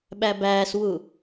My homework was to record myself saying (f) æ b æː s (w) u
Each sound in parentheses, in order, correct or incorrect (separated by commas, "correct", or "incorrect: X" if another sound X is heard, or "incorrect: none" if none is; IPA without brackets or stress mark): incorrect: ɓ, correct